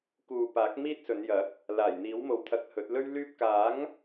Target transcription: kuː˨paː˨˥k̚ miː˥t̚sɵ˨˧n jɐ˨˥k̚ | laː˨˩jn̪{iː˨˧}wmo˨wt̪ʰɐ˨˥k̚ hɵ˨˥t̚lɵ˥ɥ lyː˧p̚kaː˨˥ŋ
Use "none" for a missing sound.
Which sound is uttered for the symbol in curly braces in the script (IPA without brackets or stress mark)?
iː˨˥